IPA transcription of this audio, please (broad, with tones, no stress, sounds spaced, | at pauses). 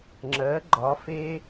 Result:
ŋ͡ǁ ɜ˨˦ ɡ͡ǃ ɒ˨˦ f e˦